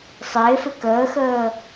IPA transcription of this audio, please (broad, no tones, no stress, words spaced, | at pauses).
sˤɪːfɪ kəːxəː